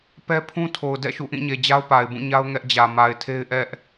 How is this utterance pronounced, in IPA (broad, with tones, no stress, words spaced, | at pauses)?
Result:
pɛ˦pʰũ˦tʰo˨ʊ̯ dɛ̰˦˨ʃṵ˦˨ʔĩ˦˨ɲe˨ d͡ʑa˦ʊ̯pa˨ɪ̯bũ˦˨ɲa˦ʊ̯ ŋɛ˦ʔd͡ʑä˨ ma˨ɪ̯tʰe˦ɪ̯ ʔɛ˦ʔ